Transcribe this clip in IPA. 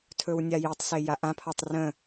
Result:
tʰ ɵ w nʲ a j i tˤ s e j a ʔ ã pʰ ɒ tˤ r ə̃

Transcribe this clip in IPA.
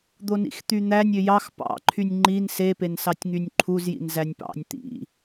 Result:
d̪ o n ḭ x t̪ y n̪ æ nʲ ø j ɑ x p ɑ̰ ǃʰ y nʲ ŋ͡ǃ i n s e p e n s ɑ tʲ ŋ y nʲ ǃʰ u z j ḭ n z æ nʲ p ɑ̰ nʲ t̪ ḭ

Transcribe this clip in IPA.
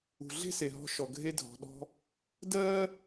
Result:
ṳ˩ ɮ e̤˥ s e˩ ɦ ɔ̤˧ ʃ ɔ˩ ɡʱ e˧ dʱ ɔ̤˩ ɗ ɔ̤˧ | d ɜː˥

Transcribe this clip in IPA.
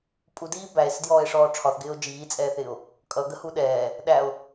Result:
pʼ u d iː b æ e̯ s ɪ d j ɔː e̯ ʂ ɔː ʈ͡ʂʰ ɒ θ ɡ ɪː o̯ d͡ʒ iː t͡sʼ ɛː θ ɪː o̯ | kʼ ʌ ɡ ə h u ɗ ɛː | ɗ æ o̯

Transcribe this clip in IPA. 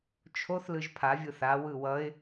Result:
t͡ʃʰ o θ l ɯ ʒ pʰ a vʲ ɯ θ a w ɯ w ʌ ɪ̯

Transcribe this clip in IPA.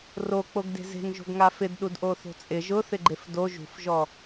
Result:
r o k͡p o ɡ d e̤ z e̤ ŋ ʒ o̤ ɡ ŋ a f ɪ d ɗ u d ʔ o θ o̤ t͡sʼ ɪ ʒ ʊ θ ɪ ɡ͡ǃ e f d o ʒ ṳ f ʒ ɔ

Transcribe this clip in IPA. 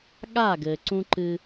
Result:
ɠ a˦˨ ɡ ɘː˨ ǀ ũ˦ ǃ ɨ˦

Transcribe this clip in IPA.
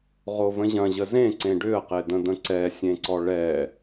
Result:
ʁ o v ə̃ ʑ ɐ̃ ʑ ə z ẽ ǀ ẽ ɖ ʏ ə̯ q e d̪ ə̃ d̪ ə̃ ǀ ɛ sʲ ẽ ǀ ɔ ɭ ɛ

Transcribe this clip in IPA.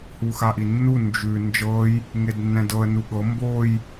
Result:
h u x a ʔ i nː u n d͡ʒ ʉ n d͡ʒ ɤ j | ŋ e d nː ɛ̃ d ɤ ə̯ n u ɠ ɤ m b o j

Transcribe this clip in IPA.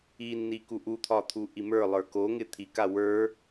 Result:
i nː i k u ʔ u t̪ʰ ɒ t̪ʰ u ʔ i m ə˞ lˠ ə˞ k o ŋ ɪ t̪ʰ i k a w ə˞

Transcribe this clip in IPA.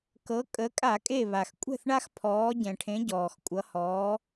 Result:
k ɤ˩˧ kʼ ə˩˧ kʼ a˧˩˧ kʼ e˧˩ β a˩ x kʷʼ ɛ̤˥˩ θ ɳ a˦ x pʰ ɔː˩˧ ɟ ɛ̃˩ ʈʰ ẽ˩˧ ɟ ɔː˩ x kʷʼ ʌ˩˧ h ɔː˩˧

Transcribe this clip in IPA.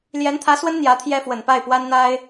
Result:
l j ɛ˧˥ n t̪ʰ ä˧˥ s w ə˥ n n̪ j ä˧˥ t̪ʰ j ɛ˥ f w ə˨˩ n p a˥˩ ɪ̯ p w a˥ n n̪ a˥ ɪ̯

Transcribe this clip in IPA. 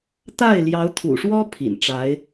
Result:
t̪ a˥˩ ɪ̯ l j ɑ˧˥ ʊ̯ t̪ʰ ṵ˨˩ ʂ w ɔ˥ pʰ ḭ˨˩ n ʈ͡ʂ a˧˥ ɪ̯

